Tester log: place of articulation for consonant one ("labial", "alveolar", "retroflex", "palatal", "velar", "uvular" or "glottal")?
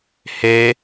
glottal